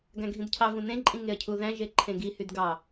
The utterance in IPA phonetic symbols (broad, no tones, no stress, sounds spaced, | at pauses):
ɡ æ̃ ɡʱ ĩ d cʰ ɑ v ũ n ẽ ǃʼ ĩ ŋ e ə̯ cʰ u ð æ̃ ʒ e ǃʰ ẽ ɡ i h y d ɡ ɑ